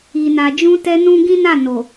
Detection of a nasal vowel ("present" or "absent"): present